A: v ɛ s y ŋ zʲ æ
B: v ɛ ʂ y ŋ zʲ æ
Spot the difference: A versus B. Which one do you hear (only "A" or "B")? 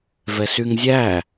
A